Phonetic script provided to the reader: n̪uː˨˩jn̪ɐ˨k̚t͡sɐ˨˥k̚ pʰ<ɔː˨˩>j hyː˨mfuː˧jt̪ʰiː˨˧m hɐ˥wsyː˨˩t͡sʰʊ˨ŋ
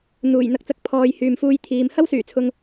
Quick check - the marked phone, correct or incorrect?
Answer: incorrect